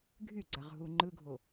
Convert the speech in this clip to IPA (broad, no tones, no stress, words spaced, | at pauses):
ɡʱyɡ͡ǀaʁ ɦuŋ͡ǃɯɡʱo